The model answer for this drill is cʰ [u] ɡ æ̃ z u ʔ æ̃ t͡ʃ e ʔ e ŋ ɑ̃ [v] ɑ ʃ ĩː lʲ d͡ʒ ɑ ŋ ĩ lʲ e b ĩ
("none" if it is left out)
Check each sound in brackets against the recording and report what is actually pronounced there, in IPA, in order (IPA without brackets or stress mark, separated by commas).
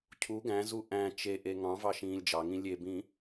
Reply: u, v